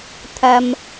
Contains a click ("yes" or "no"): no